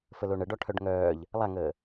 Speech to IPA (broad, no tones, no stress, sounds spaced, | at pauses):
f ə l o ɳ ə ɖ ɔ ʈʰ œ ɖ ŋ œː ʎ | lˠ a ŋ əː